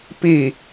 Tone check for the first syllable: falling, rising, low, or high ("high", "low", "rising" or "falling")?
falling